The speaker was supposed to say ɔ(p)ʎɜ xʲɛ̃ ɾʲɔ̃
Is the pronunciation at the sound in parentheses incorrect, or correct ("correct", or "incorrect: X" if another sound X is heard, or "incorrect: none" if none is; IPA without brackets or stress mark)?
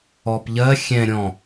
correct